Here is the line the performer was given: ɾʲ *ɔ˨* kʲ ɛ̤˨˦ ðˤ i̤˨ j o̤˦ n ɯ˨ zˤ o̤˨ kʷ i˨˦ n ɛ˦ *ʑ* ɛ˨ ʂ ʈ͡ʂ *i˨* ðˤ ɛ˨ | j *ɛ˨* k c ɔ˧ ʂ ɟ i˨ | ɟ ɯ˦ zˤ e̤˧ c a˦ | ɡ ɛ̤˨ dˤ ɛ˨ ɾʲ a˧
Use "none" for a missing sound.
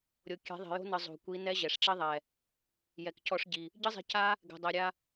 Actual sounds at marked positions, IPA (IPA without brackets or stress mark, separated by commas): o˨, ʑ, i˦, ɛ˨